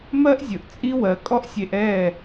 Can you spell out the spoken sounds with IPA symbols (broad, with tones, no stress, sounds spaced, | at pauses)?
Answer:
m ɜ˦ ʔ zʲ ɵ˨ ʔ t͡sʼ i˦ w ɜ˨ kʼ ɔ˦ ʔ sʲ e˧ ʔ ɛ˦˨